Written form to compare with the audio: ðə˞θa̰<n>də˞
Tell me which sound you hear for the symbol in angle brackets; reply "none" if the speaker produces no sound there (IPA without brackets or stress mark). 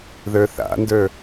n